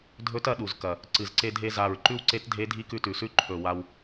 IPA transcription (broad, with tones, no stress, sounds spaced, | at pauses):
dʱ ɵ˧˥ t ɐ˧ ɗ u˨˩ z k ɐ˨˩ | ǀ ɨ˨˩ z ǀ e˧ dʱ e˧ z a˨˩ ɹ ǃ ʉ˧ w ǀ e˧˥ t dʱ e˧˥ dʱ i˧˥ k ʉ˧ t ʉ˨˩ s ʉ˧˥ ǃʰ ɵ˨˩ w a˧ w